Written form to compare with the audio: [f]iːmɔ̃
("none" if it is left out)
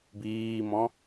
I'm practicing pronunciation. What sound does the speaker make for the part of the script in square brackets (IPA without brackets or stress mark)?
b